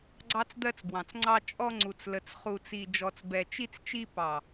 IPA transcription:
ɡ͡ǀ ɑ˧ t͡s d̪ ɜ˧ t͡s b w ɑ̃˨ t͡s ŋ͡ǀ ɑ˧ t͡ʃʼ ɔ˧ ŋ͡ǀ u˨ t͡s l ə˨ t͡s χ u˧ t͡s i˧ d͡ʒ ɔ˨ t͡s b ɛ˨ t͡ʃ i˧ t͡s t͡ʃ i˧ p ɑ˨

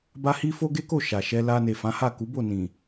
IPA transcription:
b a˦ h i˦ f o˦ ɡ e˦ k o˦˨ ʃ a˨ ʃ ɛ˧ l a˧ n e˨ f ã˨˦ h a˦˨ k u˨˦ b o˦˨ n ĩ˨

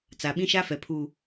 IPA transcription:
t͡s a˨ ɓ ĩ˦ ʃ a˦ f ɛ˨ pʰ uː˨

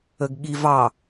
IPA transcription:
ə ɡ ɠ i v ɑ

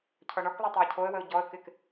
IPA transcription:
cʰ ɔ ɳ ɔ k lˠ a tˤ a ə̯ cʰ o ə̯ w ə ʊ̯ ɟ ɔ ə̯ k ɪ k

